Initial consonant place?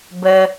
labial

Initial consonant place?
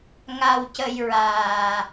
velar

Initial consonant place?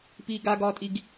labial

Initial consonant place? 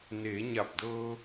alveolar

